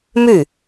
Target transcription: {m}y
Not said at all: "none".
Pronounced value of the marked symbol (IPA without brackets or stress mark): m